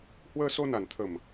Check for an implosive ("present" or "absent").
absent